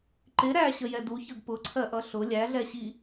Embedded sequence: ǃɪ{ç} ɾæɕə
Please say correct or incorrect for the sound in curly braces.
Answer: incorrect